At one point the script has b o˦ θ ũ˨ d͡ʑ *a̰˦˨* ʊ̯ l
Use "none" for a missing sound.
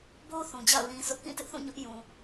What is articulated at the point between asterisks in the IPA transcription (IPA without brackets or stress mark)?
a̰˦˨